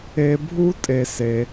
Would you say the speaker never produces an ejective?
no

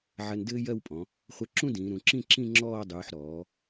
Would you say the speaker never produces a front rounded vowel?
yes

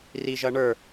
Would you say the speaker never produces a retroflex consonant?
no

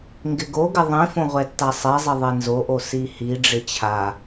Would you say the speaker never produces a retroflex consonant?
no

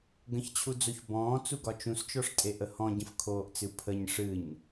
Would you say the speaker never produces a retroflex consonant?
no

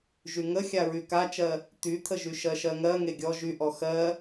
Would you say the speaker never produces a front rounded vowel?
no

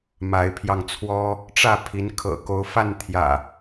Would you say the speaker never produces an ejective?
yes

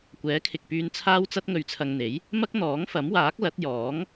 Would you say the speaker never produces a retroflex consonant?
yes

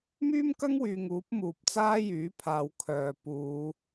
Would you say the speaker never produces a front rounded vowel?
no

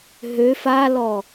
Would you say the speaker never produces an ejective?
yes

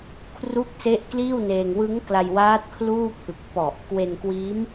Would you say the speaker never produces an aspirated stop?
no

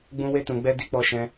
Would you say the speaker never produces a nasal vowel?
no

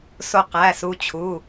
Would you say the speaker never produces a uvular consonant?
no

